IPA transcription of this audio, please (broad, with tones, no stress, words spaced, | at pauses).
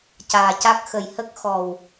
caː˨˩ca˦˥k̚ xə˨˩j hə˦˥k̚ xɔ˨˩w